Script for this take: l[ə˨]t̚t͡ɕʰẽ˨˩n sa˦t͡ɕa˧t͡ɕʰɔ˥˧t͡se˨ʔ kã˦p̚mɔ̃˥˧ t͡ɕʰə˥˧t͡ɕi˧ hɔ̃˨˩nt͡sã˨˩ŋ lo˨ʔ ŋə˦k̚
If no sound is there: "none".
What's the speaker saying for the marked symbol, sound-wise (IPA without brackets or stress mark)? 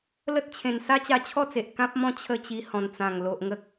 ə˦